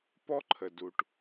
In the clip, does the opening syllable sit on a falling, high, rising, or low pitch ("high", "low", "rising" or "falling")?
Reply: high